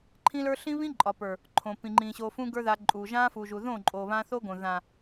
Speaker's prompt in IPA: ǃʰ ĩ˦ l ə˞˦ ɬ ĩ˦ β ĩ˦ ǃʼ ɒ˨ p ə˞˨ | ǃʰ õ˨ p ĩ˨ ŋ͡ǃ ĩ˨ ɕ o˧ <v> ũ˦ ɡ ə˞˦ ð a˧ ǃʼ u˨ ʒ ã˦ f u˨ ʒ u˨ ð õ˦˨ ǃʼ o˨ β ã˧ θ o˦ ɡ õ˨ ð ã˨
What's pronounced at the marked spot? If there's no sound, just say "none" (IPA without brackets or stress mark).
f